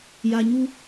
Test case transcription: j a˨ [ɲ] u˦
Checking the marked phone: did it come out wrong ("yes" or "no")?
no